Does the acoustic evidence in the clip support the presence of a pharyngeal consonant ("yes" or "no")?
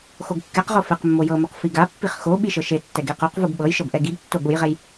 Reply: no